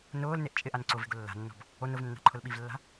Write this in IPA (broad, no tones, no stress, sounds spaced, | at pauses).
n ʊː l n e ʔ t͡ʃʼ ɪ ʔ a n ǀ ʊ v e̤ ɡ ʊ lː a̤ nː ɔ̤ b | o n ʊ v nː a̤ ǃʰ ʊ l ɓ i v lː a̤